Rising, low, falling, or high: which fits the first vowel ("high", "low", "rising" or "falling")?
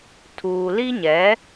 low